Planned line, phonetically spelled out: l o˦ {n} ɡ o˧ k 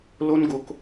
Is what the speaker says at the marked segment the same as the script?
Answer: yes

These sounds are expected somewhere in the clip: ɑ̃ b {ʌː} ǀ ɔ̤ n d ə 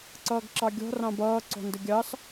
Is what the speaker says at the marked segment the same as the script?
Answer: yes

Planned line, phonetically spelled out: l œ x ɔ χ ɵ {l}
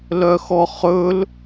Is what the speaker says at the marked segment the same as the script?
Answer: yes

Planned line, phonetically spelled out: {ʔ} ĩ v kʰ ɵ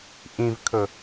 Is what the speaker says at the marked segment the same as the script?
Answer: yes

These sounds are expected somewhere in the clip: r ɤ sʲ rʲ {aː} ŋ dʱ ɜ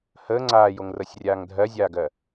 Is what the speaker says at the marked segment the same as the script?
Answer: yes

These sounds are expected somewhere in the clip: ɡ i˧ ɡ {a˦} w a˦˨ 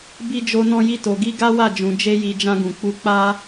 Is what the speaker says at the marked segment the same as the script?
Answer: yes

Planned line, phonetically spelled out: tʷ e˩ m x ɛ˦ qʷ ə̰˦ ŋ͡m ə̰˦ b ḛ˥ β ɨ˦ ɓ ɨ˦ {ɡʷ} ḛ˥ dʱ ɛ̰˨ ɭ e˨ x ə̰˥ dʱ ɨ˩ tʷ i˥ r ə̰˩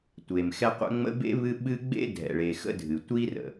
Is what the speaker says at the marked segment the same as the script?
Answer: no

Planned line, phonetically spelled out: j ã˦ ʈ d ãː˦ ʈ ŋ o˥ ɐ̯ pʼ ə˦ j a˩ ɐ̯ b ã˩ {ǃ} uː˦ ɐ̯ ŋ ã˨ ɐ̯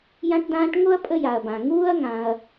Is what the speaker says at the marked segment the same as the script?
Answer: no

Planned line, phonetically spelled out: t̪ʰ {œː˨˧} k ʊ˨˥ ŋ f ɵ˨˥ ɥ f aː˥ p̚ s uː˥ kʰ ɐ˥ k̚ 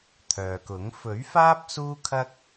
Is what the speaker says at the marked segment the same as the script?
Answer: no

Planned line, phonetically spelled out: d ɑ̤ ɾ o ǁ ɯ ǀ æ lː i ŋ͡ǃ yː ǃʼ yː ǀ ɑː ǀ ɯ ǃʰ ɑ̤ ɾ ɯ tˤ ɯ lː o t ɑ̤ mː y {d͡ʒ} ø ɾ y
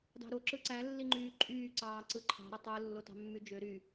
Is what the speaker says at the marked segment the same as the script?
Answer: yes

